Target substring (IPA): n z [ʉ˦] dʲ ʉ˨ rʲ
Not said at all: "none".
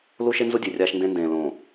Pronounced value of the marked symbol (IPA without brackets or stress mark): u˦